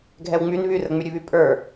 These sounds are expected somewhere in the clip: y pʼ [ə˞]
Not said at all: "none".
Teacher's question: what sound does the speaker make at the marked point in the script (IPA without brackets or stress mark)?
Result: ə˞